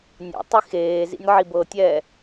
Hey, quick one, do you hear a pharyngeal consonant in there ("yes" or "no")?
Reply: yes